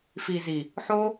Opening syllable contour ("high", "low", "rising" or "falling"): low